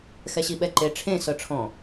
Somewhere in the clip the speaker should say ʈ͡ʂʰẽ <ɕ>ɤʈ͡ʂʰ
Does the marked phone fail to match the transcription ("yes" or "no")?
yes